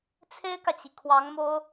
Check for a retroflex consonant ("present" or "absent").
absent